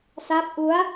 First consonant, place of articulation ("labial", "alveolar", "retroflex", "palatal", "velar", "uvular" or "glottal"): alveolar